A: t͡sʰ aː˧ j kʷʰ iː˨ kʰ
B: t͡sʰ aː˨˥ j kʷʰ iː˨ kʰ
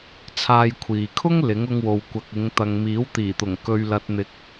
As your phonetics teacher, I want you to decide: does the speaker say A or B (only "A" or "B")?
A